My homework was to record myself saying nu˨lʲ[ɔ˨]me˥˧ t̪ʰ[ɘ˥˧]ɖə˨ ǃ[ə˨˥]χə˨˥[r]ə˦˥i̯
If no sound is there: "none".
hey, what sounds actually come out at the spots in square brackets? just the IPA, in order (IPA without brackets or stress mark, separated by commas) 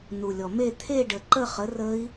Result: ɔ˨, e˥˧, ə˥˧, r